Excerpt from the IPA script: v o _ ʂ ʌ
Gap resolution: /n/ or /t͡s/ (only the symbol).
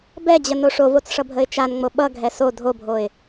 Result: t͡s